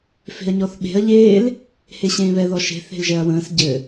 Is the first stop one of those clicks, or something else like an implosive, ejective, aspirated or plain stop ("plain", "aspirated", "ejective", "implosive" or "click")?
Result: implosive